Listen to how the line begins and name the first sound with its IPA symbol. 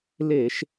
l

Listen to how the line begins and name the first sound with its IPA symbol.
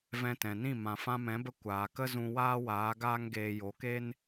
v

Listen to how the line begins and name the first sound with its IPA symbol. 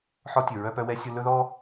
ħ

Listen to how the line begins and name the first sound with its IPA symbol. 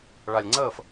ɭ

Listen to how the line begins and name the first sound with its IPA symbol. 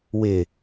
w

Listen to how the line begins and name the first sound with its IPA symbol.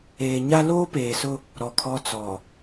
eː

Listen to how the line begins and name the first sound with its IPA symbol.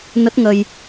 n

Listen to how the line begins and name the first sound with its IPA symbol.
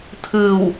t̪ʰ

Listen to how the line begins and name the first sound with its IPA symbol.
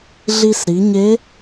ɮ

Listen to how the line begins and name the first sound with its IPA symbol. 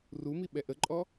r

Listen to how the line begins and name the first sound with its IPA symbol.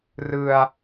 r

